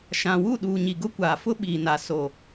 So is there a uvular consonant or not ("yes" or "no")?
no